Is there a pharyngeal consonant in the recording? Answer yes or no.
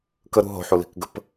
yes